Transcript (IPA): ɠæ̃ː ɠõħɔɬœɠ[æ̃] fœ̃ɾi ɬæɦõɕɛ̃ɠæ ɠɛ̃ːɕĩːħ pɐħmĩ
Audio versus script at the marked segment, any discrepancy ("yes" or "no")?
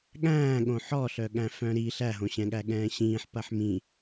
no